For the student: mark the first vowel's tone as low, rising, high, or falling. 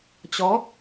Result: rising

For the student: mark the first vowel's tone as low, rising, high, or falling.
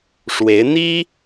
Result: rising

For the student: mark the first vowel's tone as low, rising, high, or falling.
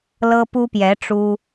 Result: high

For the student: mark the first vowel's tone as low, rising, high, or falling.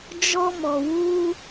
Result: high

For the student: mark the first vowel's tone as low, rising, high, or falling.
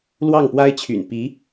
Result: falling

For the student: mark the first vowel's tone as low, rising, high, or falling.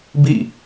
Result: falling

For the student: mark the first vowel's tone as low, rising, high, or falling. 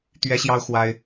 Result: high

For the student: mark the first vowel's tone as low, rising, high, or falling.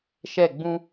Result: falling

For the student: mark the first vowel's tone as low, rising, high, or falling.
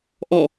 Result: falling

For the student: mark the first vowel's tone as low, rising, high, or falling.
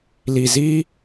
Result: low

